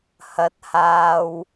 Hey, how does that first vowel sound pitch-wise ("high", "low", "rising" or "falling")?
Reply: rising